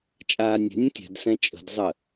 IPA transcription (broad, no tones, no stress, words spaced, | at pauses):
t͡ʃʼaːnʲɛ̤nʲə̃ tʲɛ̤dsɛ̃ t͡ʃʼə̤dzˤə